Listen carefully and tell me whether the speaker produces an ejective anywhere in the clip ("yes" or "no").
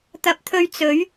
no